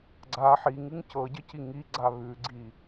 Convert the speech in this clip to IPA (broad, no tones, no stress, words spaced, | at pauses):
ɡ͡ǀa ħiŋɨŋ cɤɟɘci ŋiɡ͡ǀa βʉɡ͡ǀi